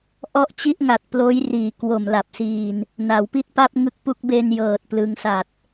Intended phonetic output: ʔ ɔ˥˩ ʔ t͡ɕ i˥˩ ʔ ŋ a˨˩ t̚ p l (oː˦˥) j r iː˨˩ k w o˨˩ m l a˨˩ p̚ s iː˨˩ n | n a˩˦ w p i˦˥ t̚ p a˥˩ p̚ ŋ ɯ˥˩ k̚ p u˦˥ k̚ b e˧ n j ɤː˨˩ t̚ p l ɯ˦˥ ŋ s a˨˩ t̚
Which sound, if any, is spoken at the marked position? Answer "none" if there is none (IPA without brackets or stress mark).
oː˦˥